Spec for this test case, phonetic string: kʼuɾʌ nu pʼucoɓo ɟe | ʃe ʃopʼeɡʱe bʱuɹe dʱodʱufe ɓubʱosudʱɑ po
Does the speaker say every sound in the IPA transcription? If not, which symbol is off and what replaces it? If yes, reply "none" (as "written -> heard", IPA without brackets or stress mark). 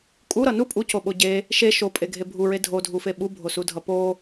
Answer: ɑ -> ʌ